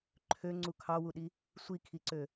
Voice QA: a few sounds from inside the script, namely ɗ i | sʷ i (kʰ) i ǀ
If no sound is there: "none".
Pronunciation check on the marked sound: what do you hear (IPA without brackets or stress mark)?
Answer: kʰ